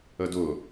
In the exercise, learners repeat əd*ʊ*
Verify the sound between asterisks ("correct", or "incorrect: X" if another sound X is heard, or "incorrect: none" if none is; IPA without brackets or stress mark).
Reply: correct